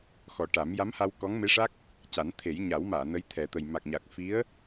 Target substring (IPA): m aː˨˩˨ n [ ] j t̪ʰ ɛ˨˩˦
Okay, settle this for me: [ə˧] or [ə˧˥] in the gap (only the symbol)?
ə˧˥